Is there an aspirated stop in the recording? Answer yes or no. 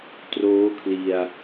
yes